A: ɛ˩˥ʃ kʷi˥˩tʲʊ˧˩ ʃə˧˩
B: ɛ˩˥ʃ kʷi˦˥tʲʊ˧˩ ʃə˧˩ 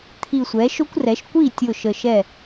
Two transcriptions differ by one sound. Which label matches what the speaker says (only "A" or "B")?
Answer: A